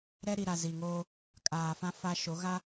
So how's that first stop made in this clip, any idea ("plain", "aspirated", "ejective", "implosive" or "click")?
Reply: ejective